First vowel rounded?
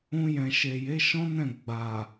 yes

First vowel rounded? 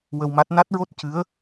no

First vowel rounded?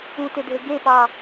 yes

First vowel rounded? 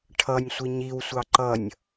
no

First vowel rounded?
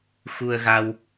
yes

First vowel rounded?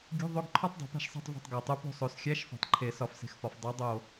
yes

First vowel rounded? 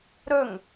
yes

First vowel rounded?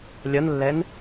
no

